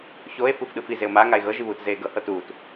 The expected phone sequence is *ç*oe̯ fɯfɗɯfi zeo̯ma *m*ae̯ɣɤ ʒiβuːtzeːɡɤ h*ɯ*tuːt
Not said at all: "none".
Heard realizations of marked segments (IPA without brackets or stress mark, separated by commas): ç, ŋ, ɤ